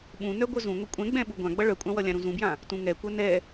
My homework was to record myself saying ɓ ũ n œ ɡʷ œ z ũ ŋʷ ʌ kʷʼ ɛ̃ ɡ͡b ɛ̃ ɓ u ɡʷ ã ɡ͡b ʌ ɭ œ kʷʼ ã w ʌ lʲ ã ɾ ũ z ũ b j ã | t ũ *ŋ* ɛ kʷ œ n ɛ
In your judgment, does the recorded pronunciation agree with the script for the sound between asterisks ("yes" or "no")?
yes